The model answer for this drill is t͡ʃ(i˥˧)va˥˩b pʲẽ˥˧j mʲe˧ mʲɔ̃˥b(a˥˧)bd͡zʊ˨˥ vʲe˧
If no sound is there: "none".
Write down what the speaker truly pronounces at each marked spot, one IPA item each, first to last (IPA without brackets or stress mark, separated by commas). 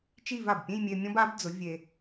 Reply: i˥˧, a˨˥